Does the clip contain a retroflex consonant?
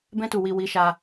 no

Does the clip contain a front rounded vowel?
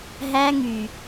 yes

